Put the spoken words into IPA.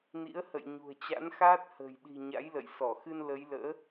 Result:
n ḭ˧˥ ə̯ h ə̰˧˨ j ɲ ṳ˨˩ ə̯ t͡ɕ a̰˧˥ n x aː˦˥ t̚ h ə̤ː˨˩ j ɗ i̤˨˩ ɲ a̰˧˥ j l ə̰˧˨ j s ɔ˧˩ x ɨ˧ n l ə˨˦ j l ə̰ː˧˥

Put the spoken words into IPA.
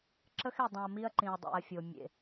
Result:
ǁ ə˦ x e˨ dˤ ĩ˨ ɐ̯ m i˦ ɐ̯ ǃ ĩ˨ ɐ̯ dˤ ḭ˨ ɐ̯ fʲ o˨ mʲ ḛ˨

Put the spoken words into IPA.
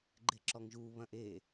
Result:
ɡ͡ǃ e ǁ ɔ ŋ ʒ u β ɐ̃ ʔ e

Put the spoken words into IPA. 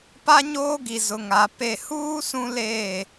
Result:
p a˦ ɲ oː˦ ɡ i˨ z ʊ˨ ŋ a˨ p e˨ h uː˦ s ũ˦ l eː˦˨

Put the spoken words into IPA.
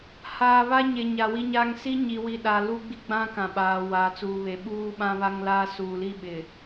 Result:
h aː˨ β a˦ ɲ e˨ ɲ a˨ w i˦ ɲ aː˦ ŋ s i˦ ɲ i˨ w i˨ ɗ a˨ l u˦ ɡ͡b i˦ ɡ͡b ã˦ k ã˨ ɓ aː˨ w aː˨ t͡s uː˨ β e˨ ɓ uː˦ ɓ ã˦ β a˦ ŋ l aː˦ s uː˨ l i˦ ɓ ɪ˨

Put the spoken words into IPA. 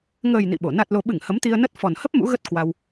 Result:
ŋ əː˨˩ j n ḭ˧˨ ɓ o˧˩ n a˨˩ t̚ l o˨˩ ɓ ɨ˧˩ ŋ h ə˨˦ m t̪ i˧ ə̯ n ə˦˥ t̚ f ɔ˨˩ n h ə˦˥ p̚ m ṵ˧˥ ɣ ə˦˥ t̚ k w a˧ w

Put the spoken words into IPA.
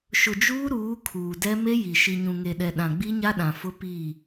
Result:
ʃ ʊ˨ d͡ʒ uː˦ ɾ uː˨˦ kʰ uː˨ d ɛ˦ m e˦ j i˨ ʃ i˨ ɲ ũ˨ ŋ e˨ ɗ ɛ˨ ɗ ã˨ ɡ͡b i˦ ɲ a˦ ɗ ã˨ f ʊ˦ p i˦˨

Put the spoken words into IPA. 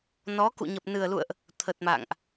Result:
n ɔ˨˦ k ṵ˧˨ ɲ ə˨˩ p̚ n ɨ˨˩ ə̯ l ṵ˧˨ ə̯ ʔ | t̪ʰ ə˨˩ t̚ m a̰ː˧˨ ŋ ʔ

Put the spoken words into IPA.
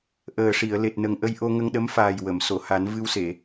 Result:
ʔ əː˨˩ ʂ i˨˩˨ ə̯ l e˨˩ t̚ n ə˨˩ ŋ ʔ ə˧ j ʔ o˧ ŋ ə˧ ŋ ɗ ə˧˥ m f aː˨˩ j w ə˨˩˨ m s o˨˩˨ h a˨˩˦ n v ɨ˧ w s e˨˩˨

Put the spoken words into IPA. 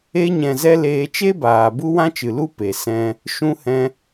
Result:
e˧ ɲ ɛ̃˨ z ɛ˧ l eː˧ t͡ʃ e˦ b aː˨ b u˦ w ã˦ t͡ʃ ɨ˨ l u˦ p e˨ s ɛ̃˧ | ʃ ũ˧ h ɛ̃˧

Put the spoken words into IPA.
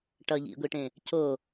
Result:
ʈ ʌ ʎ ḭ ɡʷ i ʈ ẽ | c o

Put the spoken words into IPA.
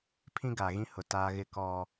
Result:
pʰ ĩ˦ ɡ a˨ ɣ ĩ˦ h ʊ˨ t aː˦ ɣ ɪ˦ k ɔ˦

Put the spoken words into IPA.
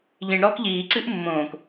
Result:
ʎ ĩ ɳ ɾ ɔː k ʎ iː ǀ ɨ ʔ mː õː k

